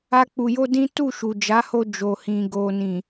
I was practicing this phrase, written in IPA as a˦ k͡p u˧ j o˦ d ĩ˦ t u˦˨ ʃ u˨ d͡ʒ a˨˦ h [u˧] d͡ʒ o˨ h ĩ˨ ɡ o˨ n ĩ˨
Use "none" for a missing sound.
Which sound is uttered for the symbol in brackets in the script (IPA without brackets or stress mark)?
o˧